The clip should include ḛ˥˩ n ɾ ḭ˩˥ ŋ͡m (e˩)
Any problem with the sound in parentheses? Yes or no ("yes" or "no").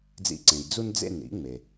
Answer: no